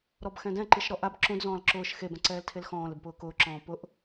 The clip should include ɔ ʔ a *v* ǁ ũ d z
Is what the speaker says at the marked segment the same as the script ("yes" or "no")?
no